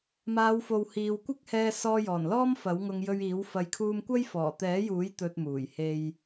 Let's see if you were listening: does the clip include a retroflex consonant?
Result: no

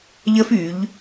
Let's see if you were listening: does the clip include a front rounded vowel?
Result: yes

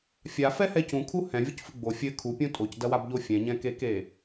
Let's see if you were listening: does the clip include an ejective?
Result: yes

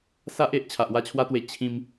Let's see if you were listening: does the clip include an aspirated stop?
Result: yes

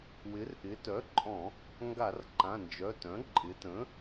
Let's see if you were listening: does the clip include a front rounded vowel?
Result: yes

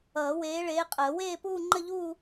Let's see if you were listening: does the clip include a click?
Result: yes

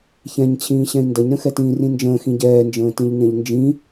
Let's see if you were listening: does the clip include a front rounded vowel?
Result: no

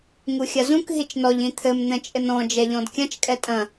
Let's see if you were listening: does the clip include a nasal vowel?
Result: yes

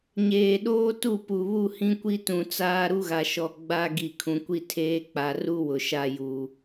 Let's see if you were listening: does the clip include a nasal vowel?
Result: yes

